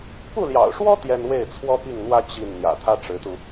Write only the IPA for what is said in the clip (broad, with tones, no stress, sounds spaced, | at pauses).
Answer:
p u˥˩ l j ɑ̰˨˩ ʊ̯ ʂ w ɔ˥ t̪ j ɛ˥ n w e˥˩ ɪ̯ t͡sʰ w ɔ˥ p i˥˩ ŋ n̪ w ä˥ t͡ɕ i˥˩ n n̪ j ä̰˨˩ t̪ʰ ä˥ ʈ͡ʂ ɻ̩˧˥ t̪ u˧